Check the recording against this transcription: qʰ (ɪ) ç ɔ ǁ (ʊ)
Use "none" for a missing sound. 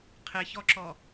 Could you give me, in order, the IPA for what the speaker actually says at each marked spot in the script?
ɪ, ɔ

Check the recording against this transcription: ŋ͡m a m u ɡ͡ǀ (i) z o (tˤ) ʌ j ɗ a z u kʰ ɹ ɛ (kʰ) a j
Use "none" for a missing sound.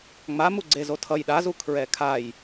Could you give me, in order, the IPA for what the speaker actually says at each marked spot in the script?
e, tʰ, kʰ

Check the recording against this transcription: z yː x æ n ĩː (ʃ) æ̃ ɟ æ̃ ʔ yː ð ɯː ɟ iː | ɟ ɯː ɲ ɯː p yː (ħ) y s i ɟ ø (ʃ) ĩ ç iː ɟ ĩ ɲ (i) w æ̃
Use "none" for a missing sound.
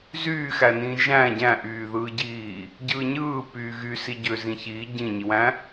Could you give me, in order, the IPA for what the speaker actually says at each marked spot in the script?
ʒ, ɣ, z, i

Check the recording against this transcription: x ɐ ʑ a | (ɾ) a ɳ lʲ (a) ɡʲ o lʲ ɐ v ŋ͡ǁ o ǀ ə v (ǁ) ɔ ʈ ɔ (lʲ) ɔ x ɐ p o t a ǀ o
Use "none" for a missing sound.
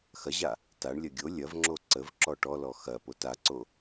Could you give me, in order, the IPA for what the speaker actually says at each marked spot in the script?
t, ɐ, ǁ, l

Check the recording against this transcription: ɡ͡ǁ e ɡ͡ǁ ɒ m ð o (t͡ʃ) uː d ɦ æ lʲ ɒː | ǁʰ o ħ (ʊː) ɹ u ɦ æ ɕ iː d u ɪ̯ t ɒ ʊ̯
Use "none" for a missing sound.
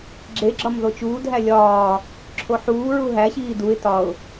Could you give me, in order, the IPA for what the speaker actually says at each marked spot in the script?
t͡ʃ, uː

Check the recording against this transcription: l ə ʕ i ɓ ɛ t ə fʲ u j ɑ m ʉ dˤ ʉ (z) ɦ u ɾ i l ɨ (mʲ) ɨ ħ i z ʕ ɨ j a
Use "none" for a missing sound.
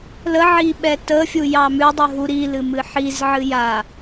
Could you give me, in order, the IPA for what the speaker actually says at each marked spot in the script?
none, m

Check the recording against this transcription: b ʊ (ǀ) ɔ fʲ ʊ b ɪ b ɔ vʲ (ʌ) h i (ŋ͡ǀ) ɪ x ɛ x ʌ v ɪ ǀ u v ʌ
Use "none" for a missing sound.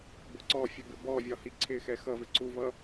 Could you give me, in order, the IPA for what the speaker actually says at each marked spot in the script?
ǀ, ɒ, ǀʰ

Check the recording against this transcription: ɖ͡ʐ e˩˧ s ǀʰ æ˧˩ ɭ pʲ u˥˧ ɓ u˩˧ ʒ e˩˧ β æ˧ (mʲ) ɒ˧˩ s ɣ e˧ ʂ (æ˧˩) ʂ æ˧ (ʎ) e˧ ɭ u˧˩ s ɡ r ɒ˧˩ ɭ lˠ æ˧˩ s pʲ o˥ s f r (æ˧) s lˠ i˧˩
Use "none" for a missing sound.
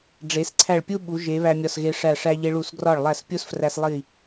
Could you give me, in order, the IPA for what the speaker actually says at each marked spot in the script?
mʲ, æ˧˩, ʎ, æ˧

